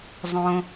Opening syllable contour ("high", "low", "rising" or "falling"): high